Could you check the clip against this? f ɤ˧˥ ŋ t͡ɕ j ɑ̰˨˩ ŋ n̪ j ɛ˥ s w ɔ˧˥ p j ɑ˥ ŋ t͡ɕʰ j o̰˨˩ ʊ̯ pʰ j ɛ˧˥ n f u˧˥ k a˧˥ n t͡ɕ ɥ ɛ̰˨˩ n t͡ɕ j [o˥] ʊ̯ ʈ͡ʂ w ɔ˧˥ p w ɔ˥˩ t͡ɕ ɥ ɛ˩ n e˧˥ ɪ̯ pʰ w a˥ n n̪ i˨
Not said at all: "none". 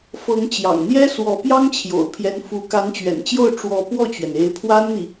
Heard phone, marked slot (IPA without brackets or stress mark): o˥˩